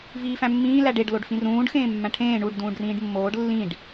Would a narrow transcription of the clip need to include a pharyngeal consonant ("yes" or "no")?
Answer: no